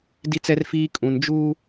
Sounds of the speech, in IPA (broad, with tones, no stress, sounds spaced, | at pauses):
d i˦ t͡s ɛ˦ r f iː˦ kʼ ũ˨ n d͡ʒ uː˦